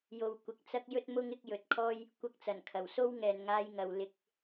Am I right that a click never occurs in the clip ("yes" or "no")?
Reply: yes